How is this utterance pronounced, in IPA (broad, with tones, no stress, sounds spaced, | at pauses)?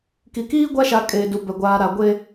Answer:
k i˨ k iː˦ ɡʷ a˦ ʃ a˨ kʼ eː˨ d u˨ b ɛ˨ ɡʷ aː˨ ɾ a˨ ɡʷ e˦